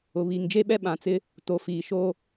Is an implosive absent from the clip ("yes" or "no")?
no